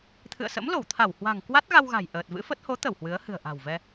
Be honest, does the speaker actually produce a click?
no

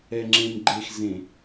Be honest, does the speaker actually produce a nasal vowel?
yes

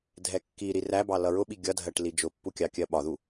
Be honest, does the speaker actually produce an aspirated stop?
no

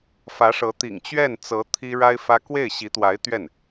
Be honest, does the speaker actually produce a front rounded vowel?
no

